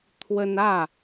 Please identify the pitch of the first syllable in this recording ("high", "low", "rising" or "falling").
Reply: high